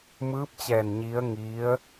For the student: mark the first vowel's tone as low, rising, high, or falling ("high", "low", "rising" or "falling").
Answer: rising